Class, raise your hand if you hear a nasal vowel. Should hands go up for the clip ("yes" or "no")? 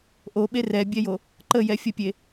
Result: no